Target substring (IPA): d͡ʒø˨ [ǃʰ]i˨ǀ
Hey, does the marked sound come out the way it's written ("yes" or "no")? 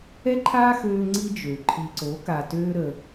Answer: yes